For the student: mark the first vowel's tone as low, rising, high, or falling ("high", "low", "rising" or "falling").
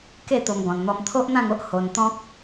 falling